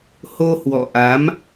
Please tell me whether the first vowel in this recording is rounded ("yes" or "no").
yes